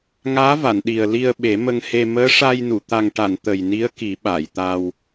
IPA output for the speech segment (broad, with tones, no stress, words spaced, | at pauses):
ŋaː˧˥va˨˩˨n ɗi˨˩ə̯li˧ə̯ ɓe˨˩˦mə˧ŋhe˧ məː˧˥ʂa˧jnu˨˩˨ t̪a˨˩ŋʈa˨˩˨n t̪ə˨˩jni˧˥ə̯ki˨˩˦ ɓa˨˩˨jt̪a˧w